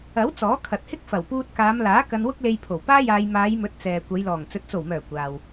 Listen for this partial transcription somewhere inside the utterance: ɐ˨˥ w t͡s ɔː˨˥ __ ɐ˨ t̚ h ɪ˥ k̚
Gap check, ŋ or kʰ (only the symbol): kʰ